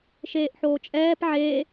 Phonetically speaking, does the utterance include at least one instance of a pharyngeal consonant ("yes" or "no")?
yes